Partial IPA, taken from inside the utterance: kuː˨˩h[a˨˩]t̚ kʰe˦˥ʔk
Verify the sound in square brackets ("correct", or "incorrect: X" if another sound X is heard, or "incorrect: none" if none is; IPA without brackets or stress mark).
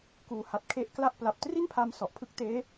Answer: correct